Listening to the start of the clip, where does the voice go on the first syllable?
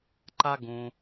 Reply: high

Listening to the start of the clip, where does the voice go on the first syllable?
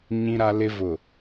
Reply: low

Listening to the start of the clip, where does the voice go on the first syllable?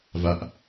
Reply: low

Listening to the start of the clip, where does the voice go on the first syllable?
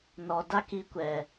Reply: low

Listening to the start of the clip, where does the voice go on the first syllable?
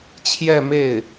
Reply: falling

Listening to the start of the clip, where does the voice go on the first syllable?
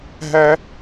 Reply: high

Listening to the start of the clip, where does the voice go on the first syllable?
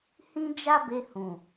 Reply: high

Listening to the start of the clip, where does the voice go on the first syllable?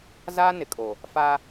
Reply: high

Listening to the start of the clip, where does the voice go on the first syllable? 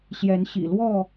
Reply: rising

